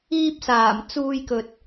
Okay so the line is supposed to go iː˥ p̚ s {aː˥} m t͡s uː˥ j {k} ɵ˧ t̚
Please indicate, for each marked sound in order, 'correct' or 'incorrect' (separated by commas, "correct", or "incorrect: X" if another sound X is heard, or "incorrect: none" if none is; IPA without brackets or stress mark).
incorrect: aː˨˩, correct